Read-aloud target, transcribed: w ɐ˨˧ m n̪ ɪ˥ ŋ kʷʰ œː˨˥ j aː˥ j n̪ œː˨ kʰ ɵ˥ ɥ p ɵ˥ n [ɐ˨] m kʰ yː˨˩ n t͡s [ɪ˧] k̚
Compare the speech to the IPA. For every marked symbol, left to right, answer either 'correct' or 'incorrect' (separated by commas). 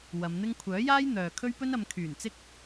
incorrect, incorrect